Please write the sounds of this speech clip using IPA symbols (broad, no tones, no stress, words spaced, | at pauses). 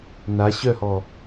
na ɕœhɔ